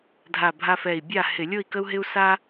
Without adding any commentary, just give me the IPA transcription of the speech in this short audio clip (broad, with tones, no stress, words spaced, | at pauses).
dʱa˧˩ bʱa˦fɛ˧˩i̯ bʲa˥˨hɪ˧˩˧ lʲo˥˨i̯kə˦u̯ɦɪ˦u̯ sa˦